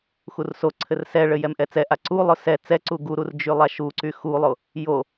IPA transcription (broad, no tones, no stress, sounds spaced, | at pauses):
x u r s o ǀʰ ɘ r s ɛ ɭ ɘ j ɛ m ʔ ɛ t͡s ɛ ʔ a ǀ u lˠ ʊ s ɛ t͡s ɛ ǀ u ɡ u ɾ u r d͡ʒ y lˠ a ʃ u ǀ y x u lˠ o | j o